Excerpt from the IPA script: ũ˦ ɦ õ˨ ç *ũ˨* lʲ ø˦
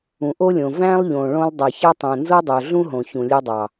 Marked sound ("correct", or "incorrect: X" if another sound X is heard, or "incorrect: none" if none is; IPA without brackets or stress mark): correct